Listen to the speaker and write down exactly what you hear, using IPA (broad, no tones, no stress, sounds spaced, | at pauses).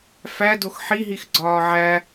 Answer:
f æ d o x ħ i ɦ i x ɡ͡ǀ ɒː ʕ æ